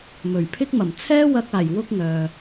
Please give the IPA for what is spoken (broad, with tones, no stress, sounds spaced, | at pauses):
m ɵ˨˩ ɥ pʰ ɪ˥ k̚ m ɐ˨˩ m t͡sʰ ɛː˥ w ɐ˧ k̚ aː˨˩ j w ʊ˧ k̚ ŋ œː˨